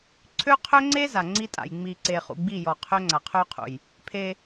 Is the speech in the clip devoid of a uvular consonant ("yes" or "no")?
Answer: no